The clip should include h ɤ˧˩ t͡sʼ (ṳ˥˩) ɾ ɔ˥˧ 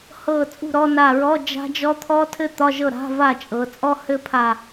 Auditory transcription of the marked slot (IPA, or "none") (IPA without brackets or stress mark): ṳ˥˩